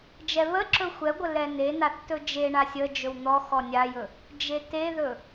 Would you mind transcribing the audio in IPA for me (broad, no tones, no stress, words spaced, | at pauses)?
d͡ʒɛβəǁɵ xʷɛɡʷə lɛnenaθ tɵd͡ʒeɳa sʲə d͡ʒɵwn̪ɔxɔ nʲajɵ | d͡ʒeteðɵ